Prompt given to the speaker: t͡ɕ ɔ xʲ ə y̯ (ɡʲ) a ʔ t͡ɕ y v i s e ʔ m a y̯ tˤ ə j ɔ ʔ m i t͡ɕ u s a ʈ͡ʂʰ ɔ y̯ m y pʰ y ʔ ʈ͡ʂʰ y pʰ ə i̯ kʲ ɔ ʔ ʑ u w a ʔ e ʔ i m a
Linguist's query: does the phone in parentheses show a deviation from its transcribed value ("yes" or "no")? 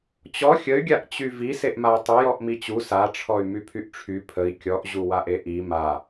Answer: no